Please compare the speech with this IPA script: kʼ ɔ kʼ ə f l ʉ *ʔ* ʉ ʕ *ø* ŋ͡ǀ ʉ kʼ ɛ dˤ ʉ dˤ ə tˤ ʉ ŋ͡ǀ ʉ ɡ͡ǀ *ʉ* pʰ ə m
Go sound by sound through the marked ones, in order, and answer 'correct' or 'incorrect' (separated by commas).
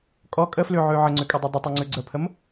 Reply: incorrect, incorrect, incorrect